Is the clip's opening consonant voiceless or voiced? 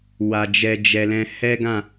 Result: voiced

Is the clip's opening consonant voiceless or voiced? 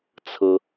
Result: voiceless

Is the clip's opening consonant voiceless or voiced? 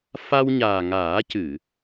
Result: voiceless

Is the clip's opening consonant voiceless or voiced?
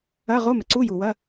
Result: voiced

